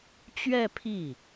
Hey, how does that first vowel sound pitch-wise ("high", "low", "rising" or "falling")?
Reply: falling